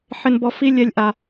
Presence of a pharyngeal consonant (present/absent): present